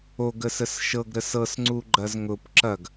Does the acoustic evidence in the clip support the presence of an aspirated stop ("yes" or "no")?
no